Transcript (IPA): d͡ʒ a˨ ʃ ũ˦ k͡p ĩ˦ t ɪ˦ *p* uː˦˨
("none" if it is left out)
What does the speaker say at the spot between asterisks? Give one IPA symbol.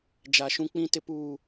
p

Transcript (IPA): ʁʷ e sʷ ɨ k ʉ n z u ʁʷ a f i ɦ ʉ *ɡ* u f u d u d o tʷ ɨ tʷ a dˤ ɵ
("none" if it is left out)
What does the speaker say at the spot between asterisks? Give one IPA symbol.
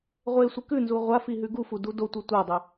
ɡ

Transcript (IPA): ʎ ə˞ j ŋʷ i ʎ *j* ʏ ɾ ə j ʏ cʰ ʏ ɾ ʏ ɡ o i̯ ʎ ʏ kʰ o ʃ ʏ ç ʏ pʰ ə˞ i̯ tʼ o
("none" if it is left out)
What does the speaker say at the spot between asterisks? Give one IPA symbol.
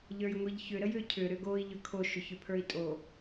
ç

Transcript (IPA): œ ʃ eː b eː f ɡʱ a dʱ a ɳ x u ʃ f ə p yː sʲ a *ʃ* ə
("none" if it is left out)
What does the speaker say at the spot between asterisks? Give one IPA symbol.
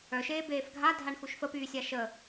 ʃ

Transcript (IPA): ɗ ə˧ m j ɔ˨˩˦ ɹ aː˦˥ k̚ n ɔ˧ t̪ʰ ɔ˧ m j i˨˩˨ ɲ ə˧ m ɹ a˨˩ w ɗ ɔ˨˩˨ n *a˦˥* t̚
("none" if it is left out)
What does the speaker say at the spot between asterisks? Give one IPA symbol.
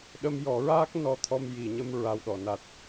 a˨˩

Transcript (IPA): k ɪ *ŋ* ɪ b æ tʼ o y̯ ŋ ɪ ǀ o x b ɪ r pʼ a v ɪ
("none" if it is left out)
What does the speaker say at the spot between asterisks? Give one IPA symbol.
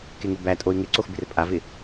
ŋ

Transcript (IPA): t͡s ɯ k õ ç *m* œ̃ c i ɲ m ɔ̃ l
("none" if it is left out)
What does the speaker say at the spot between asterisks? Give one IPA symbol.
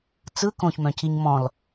m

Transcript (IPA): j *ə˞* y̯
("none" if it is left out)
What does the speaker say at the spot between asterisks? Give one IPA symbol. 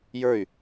ə˞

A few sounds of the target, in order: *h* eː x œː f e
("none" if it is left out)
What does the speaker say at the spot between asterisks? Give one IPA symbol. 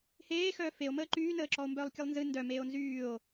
h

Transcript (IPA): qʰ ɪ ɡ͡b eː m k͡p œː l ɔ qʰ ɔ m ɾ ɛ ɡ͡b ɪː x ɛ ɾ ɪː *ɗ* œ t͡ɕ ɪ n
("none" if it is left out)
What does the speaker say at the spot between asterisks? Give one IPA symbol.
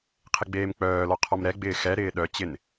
ɗ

